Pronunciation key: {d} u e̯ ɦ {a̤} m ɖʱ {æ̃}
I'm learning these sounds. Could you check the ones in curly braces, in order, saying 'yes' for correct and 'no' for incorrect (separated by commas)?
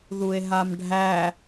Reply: no, no, no